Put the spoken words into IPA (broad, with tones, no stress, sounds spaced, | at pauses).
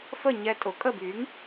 f ə˥˩ ɲ ɛ˧ tʼ ʊ˨˩˦ kʼ ə˥˩ b y˩˥ ŋ